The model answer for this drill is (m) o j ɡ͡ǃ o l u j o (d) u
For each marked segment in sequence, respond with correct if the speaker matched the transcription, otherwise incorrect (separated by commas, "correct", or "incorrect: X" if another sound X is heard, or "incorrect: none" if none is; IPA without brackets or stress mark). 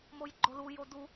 correct, correct